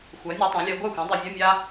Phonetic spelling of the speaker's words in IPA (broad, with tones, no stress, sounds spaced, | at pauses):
xʷ ɜ˩˥ nʲ ɔ˧˥ tˤ ã˩˥ lʲ ɜ˧˥ ɡʷ a˥˩ xʷ ã˩˥ dˤ i˨ vʲ ɜ˧˥˧ mʲ a˥